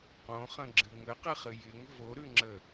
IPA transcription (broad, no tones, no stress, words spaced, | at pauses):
qõχə̃ɡ͡ǁɨ ŋəqɨχɨ jɪŋ voɾʉŋ͡ǁə